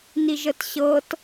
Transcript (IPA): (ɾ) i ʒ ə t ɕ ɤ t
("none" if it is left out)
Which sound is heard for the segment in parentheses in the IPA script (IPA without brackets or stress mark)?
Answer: n